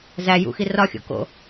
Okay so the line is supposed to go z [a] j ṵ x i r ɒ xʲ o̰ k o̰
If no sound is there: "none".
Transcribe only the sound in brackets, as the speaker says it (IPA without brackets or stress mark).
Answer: æ